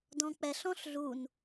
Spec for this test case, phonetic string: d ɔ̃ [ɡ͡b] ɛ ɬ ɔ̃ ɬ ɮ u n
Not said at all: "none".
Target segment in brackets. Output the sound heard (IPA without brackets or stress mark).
k͡p